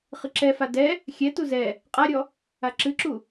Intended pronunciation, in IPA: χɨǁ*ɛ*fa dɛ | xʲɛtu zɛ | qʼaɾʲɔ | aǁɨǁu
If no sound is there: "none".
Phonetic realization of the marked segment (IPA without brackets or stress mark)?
ɛ